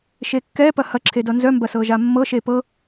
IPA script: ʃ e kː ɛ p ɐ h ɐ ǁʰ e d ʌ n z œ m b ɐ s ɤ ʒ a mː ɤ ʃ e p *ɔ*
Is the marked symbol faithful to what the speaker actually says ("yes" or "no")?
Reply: no